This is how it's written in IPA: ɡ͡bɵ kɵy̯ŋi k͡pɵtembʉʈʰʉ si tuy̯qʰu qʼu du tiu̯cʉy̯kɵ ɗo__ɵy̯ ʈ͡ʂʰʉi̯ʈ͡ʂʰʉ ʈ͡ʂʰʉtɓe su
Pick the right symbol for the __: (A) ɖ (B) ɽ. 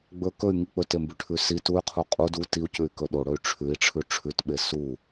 B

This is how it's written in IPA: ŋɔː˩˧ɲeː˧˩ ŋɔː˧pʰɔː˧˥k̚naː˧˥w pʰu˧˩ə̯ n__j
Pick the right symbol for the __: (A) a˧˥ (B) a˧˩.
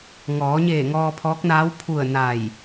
B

